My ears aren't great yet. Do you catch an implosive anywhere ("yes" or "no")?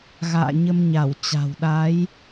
yes